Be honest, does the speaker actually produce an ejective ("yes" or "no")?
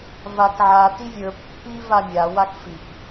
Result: no